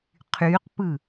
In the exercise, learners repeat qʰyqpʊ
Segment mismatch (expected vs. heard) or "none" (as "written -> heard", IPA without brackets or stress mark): ʊ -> ɯ